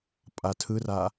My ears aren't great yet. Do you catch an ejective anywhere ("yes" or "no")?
yes